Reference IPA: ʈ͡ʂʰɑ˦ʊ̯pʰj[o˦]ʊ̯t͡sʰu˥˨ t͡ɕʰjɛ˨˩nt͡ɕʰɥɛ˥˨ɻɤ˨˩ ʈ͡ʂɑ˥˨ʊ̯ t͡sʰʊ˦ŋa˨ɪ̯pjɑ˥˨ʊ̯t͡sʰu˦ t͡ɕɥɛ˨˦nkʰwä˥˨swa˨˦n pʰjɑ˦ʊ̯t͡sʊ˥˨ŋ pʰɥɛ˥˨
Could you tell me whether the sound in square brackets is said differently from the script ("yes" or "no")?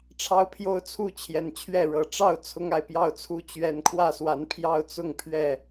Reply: no